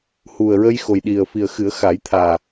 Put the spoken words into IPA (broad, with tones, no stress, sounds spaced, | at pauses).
h u˨˩ ə̯ ɹ ə˧ j x o˨˩ j ɗ i˨˩ ə̯ f i˨˩ ə̯ x ɨ˨˩˦ ə̯ x a˨˩˦ j t̪ʰ aː˨˩